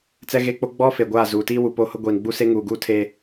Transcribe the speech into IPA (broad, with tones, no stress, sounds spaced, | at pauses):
t͡s ɛ˦ ɣ e˦ k͡p o˦ ɡ͡b ɔ˦ f e˨ ɡʷ aː˦˨ z uː˨ t iː˦ w u˨ p o˦ h ʊ˦ ɡʷ iː˨ n ɡ͡b u˦ s e˦ ŋ uː˨ ɡ uː˦ tʰ e˦